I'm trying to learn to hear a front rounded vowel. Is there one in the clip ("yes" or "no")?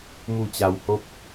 no